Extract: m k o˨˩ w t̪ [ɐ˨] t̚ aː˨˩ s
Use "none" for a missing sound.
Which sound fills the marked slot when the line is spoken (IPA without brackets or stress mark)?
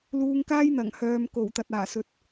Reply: ɐ˨